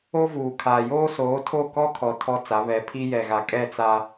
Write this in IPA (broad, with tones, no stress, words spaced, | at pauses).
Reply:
o˦vuː˨kʰaː˨ joː˦soː˨˦tʰo˦˨ kɔ˦kʰɔ˨ tʰɔ˦t͡sa˨˦ βɛ˨˦pʰi˦jɛ˨ɣa˨ kʼɛ˦˨t͡sa˦